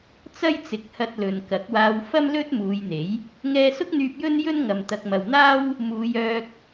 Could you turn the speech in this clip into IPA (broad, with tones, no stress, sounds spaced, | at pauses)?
t͡s ɐ˥ j t͡s ɪ˨˥ k̚ h ɐ˧ t̚ l ɵ˨ n k ɐ˨˥ k̚ w aː˧ w f ɐ˥ m l ɵ˥ t̚ m uː˨˧ j n̪ e˨˥ j | ŋ ɛː˧ s ʊ˥ k̚ n̪ yː˧ p̚ j ɵ˥ n j ɵ˥ n ŋ ɐ˨ m t̪ ɐ˨ k̚ m ɐ˨ w n̪ aː˥ w | m uː˨˧ j œː˧ k̚